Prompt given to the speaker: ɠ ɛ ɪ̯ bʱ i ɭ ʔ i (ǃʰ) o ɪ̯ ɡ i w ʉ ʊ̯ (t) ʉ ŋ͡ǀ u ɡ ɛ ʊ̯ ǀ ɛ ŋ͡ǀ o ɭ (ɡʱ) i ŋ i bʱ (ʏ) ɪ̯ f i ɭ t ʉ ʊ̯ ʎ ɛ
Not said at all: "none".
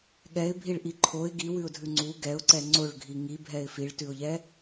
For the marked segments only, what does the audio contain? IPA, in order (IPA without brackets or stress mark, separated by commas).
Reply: ǃʰ, dʱ, ɡʱ, ɛ